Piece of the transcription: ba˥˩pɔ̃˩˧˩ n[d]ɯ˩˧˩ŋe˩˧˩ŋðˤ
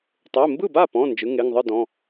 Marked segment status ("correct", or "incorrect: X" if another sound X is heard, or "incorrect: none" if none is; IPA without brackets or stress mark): incorrect: d͡ʒ